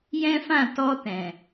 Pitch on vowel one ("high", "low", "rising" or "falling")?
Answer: high